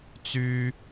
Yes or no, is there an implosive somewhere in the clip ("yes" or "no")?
no